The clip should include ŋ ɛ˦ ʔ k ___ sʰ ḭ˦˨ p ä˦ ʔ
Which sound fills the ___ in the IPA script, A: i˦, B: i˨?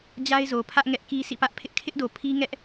A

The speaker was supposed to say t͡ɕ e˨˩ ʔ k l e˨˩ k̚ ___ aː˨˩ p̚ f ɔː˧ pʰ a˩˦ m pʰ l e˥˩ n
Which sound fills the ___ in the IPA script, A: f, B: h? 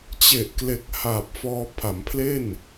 B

